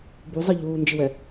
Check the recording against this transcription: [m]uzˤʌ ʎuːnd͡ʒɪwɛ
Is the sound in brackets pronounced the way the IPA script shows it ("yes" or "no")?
no